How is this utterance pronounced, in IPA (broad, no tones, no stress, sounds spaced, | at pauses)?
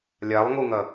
lʲ a lˠ ŋ u ŋ ɐ